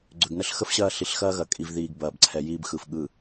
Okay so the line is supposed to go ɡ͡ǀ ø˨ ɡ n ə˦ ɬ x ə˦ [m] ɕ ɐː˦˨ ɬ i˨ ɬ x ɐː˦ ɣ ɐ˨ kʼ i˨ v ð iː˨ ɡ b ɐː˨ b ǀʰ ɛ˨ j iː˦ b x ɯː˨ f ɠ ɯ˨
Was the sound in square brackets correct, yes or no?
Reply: no